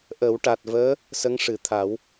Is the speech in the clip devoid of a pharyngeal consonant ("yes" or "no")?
yes